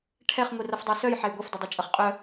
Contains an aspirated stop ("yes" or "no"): yes